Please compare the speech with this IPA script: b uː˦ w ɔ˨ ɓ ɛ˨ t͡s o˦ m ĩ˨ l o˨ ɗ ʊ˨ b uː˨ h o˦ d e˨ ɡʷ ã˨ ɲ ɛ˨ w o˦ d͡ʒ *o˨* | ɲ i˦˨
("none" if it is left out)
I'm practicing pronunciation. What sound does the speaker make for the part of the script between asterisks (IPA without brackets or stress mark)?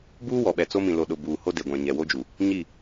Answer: u˨